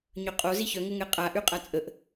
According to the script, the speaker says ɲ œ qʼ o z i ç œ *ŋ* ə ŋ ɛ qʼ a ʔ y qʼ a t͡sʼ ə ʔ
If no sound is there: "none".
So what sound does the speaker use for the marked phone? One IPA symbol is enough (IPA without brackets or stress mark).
ŋ